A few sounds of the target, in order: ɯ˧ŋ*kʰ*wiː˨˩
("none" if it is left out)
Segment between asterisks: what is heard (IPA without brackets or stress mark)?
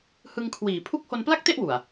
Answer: kʰ